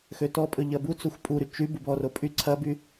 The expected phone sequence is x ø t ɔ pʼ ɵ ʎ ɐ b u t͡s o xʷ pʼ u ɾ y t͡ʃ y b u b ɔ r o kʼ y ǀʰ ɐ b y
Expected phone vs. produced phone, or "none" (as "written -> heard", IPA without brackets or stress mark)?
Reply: kʼ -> pʼ